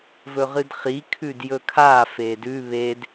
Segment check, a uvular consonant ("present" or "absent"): present